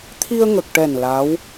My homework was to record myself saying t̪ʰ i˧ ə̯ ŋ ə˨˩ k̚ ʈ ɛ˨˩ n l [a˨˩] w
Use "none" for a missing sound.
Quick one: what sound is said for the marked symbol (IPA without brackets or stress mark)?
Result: a˧˥